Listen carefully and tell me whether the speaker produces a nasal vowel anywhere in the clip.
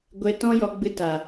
yes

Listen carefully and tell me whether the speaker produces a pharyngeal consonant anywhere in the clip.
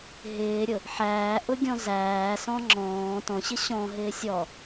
yes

